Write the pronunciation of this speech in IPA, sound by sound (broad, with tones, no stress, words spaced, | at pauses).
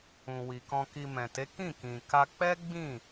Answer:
ũ˨wi˨ kɔ̃˧ki˧ mɛ̃˨te˨˦kĩ˦˨kĩ˨ ka˧ k͡pɛ˦ ɡ͡bĩ˦˨